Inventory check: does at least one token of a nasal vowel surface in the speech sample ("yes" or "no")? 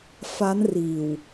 no